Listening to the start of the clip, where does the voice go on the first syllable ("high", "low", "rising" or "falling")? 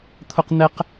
high